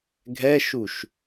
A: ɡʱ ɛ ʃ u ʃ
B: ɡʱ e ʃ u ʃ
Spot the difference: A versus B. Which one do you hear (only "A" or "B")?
A